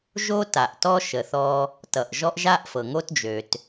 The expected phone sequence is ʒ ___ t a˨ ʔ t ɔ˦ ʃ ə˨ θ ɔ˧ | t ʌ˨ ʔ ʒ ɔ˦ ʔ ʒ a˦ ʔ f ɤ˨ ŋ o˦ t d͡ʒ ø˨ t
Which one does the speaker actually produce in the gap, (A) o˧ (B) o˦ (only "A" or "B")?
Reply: B